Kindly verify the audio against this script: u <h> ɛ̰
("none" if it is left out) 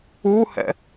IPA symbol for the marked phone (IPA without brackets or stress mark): h